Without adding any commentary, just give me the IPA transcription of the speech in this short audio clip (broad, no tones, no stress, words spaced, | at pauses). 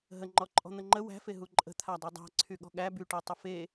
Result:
ɦə ŋ͡ǃɔǃʼɔ̤n̪əŋ͡ǃə wæ̤fe ɦuǃʼə̤ t̪ʰadˤedˤæ̤ ǀʰyɠɔ̤ɠæ byʈetˤə fe